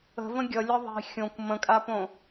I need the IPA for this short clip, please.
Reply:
ə̤və̃ ɡʲʌlʲʌ ðˤi̤ xʲõkʷ mə̃kʼapõ

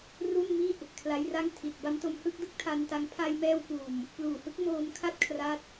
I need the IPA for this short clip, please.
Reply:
ru˥˩nmi˥˩ʔ | kʰla˦˥jra˥˩ŋ tʰi˨˩t̚ ba˦˥mto˧mhɯ˥˩k̚dɯ˥˩k̚ tʰa˧nta˧ŋ pʰa˧jmɛː˧wkuː˨˩m | pluː˨˩hɯ˥˩k̚ moː˧mkʰa˥˩t̚ kʰra˦˥t̚

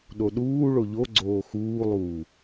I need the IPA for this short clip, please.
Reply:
ɗoɗuː ɭoʎoɡ͡ǀoː xuːlˠuː

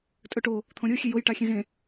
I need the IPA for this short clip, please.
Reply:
tʼɵʈo | t̪ʰõɾʲo xʲejoj ʈaxʲẽzẽ

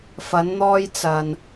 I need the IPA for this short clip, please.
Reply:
fɐ˨˧nn̪ɔː˧jt͡sɐ˨n

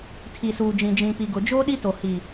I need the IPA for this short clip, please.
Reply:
tʰi˨suː˨d͡ʒĩ˨ d͡ʒĩ˨pi˨ɡʊ˨d͡ʒoː˦ ɗi˦to˨ hi˨

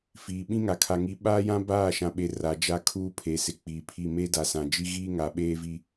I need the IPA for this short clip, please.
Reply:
fiː˨ ɓĩ˦ŋa˨kʰa˨ ŋi˨˦ɓaː˦jã˦ baː˦˨ ʃã˨ɓe˨ ra˨d͡ʒa˦ kʰuː˦pʰe˨sɪ˨ k͡piː˨pʰi˦˨ meː˦da˨sã˨d͡ʒi˦ ɣiː˦ŋa˨ɓeː˦vi˦

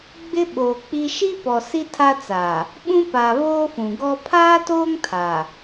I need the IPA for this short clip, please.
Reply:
ɡ͡bɪ˦ɓoː˨k͡pi˦ ʃi˦pɔ˨ si˦tʰa˦ t͡saː˨ | ɓũ˦paː˨ βoː˦fũ˨ ɡɔ˦ pʰaː˦toː˦ŋ tʰa˨

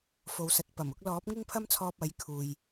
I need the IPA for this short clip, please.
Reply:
fo˨wsɐ˨t̚pɐ˨˩mʊ˨˥k̚ lɔː˨˥p̚ŋɪ˥ŋpʰɐ˥mt͡sʰɔː˧p̚ ɐ˨˥j kʰuː˨j

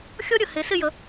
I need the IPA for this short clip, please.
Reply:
xʲɔ˥ɾʲə˧˩ he˩˧sɪ˥˧jə˩˧

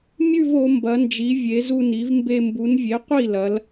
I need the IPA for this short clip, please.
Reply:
mʲʉ˥˧vo˩˧ mbɐ˩˧nd͡ʒi˩˧vʲe˩˧ zu˧ni˩˧vmbe˧ mbu˩˧nvʲe˩˥ qʷi˥˩lɐ˩˧l

